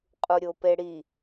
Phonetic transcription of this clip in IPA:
qʼ u ɾʲ o p e ɽ i

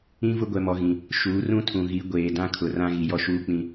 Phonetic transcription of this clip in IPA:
ĩ˦ v ʊ˦ ɡʷ ɛ˨ m ɔ˨ ɣ ĩ˨ | ʃ uː˨˦ r ũ˦ tʰ ũ˨ ɣ i˨˦ ɡʷ eː˨ d ã˦ kʰ ʊ˨ r ã˦ ɣ i˨ j ɔ˦ ʃ uː˦ k͡p ĩ˦

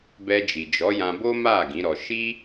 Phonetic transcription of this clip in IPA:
b ɛ˧ d͡ʒ i˨ d͡ʒ ɔ˨˦ j ã˧ b o˦ m a˦˨ ɡ ĩ˨˦ ɾ ɔ˧ ʃ i˦

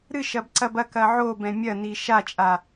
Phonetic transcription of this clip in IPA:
ɾ ɨ ʃ ɐ b ǀ ɐ b ɐ k ɐ ʕ o b ɛ̃ mʲ ɐ n i ʃ a t͡ʃʼ a

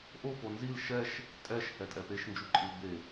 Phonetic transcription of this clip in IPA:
ʔ o p o n z i l ʃ ɛ ʃ | tʼ ɛ ʃ h ɛ tʼ ɛ p e ʃ n d͡ʒ u ǃʼ i l b e

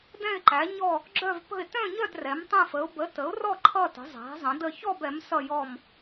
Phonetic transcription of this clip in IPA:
d ɛ̃˥˧ ɪ̯ ǃ æ˨˥ ɲ ɔ˥˧ | ɡ͡ǁ œ˥˧ v p ə̤˥˧ ɪ̯ t œ̃˥˧ ɲ œ˥˧ d r ɛ˨˥ m tˤ ɛ̃˥˧ f ə˨˥ ʊ̯ b ə˨˥ t ə˨˥ ʊ̯ r ɔ˥˧ ǃʰ ʌ˥˧ t ə̤˨˥ zˤ æ̤˨˥ zˤ ə̃˨˥ d ə˥˧ ç ɔ˥˧ b ɛ˨˥ m s ʌ˥˧ j ɔ˥˧ m

